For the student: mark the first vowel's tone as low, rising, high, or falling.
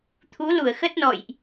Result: rising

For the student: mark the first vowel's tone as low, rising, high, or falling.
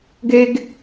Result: high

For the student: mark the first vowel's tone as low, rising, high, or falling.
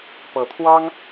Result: rising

